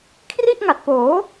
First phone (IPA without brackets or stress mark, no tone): kʰ